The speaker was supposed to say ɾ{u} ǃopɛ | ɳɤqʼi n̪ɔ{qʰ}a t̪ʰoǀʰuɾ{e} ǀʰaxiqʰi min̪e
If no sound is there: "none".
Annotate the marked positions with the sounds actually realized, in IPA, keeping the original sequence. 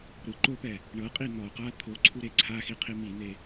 ɯ, q, e

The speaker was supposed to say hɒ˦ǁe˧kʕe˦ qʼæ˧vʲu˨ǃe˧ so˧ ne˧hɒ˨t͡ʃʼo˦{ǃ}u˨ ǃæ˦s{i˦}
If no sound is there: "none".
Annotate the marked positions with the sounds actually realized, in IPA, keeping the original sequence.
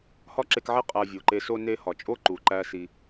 ǃ, i˧

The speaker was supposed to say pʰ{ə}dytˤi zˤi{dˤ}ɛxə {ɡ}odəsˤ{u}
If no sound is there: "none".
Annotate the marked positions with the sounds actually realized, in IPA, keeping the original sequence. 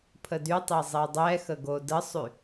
ə, dˤ, ɡ, y

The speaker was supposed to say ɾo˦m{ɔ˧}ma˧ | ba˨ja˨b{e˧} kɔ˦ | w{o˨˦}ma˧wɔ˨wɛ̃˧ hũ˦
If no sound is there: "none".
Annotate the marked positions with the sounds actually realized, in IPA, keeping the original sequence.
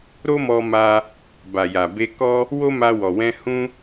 ɔ˧, e˧, o˦

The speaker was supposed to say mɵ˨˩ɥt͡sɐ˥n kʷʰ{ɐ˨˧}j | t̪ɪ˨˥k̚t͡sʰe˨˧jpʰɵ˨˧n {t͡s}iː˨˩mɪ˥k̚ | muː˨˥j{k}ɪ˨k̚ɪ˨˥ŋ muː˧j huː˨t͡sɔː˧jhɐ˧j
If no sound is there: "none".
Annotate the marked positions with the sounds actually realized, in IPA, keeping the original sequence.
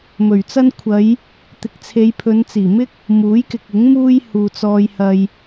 ɐ˨˧, t͡s, k

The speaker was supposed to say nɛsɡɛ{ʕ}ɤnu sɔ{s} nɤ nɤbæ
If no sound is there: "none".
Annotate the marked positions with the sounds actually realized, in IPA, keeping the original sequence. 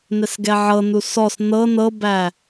ʕ, s

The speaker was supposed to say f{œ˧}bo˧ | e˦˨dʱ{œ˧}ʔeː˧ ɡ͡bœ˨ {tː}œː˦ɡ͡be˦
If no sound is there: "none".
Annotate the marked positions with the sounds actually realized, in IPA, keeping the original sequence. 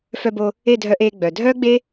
œ˧, œ˧, dʱ

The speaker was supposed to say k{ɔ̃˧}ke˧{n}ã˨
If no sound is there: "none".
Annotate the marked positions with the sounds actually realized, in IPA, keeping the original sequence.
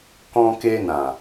ɔ̃˧, n

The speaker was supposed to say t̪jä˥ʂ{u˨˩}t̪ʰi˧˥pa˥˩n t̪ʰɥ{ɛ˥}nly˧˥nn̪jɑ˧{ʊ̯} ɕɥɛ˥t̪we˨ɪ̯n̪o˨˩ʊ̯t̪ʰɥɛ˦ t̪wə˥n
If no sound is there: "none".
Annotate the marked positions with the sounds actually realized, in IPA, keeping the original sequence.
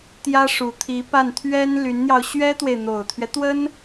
u˨˩, ɛ˥, ʊ̯

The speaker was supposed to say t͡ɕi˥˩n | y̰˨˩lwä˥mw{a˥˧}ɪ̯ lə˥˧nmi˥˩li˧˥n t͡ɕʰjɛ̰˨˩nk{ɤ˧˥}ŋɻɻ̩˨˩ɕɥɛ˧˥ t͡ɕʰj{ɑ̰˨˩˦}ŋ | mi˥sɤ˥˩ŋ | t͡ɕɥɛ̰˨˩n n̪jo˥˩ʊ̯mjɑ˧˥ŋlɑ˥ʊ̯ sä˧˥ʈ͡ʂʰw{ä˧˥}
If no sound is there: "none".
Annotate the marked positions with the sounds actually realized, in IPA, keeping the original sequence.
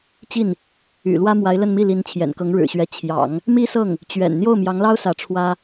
a˧˥, ɤ˧˥, ɑ̰˨˩˦, ä˥

